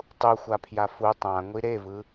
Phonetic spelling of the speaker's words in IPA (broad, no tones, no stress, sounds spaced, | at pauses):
tˤ u xʷ a pʰ j a f u tˤ ã ŋʷ i ɾ e v ɯ